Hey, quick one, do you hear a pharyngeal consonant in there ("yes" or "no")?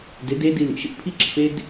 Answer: no